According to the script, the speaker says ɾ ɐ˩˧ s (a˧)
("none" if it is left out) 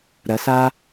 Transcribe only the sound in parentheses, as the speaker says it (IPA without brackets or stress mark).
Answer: a˧